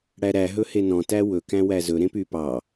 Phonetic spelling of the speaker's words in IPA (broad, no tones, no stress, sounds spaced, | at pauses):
ɽ æ ɾ æ ɦ ɵ h e n ɔ̃ t æ w ɵ k æ̃ w æ z ɵ ɾ ẽ p y p ɑ